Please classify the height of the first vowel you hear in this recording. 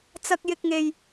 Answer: low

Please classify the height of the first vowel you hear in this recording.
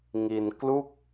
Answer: high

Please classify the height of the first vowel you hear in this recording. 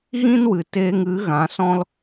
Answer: high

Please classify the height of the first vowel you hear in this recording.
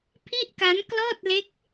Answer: high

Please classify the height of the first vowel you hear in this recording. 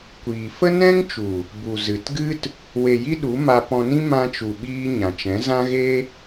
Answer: high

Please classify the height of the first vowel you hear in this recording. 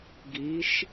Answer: high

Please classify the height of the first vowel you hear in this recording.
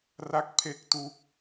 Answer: low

